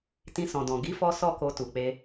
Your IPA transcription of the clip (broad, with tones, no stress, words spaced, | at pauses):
tĩ˧sɔ̃˨dɔ̃˨ ɡi˨˦fɔ˧ sɔ˦ko˧tu˨k͡pe˧